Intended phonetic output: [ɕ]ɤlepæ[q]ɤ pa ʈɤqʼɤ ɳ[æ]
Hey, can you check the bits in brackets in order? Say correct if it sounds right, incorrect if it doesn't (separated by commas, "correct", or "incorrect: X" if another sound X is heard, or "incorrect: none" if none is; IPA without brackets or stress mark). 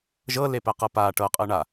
incorrect: ʒ, correct, incorrect: a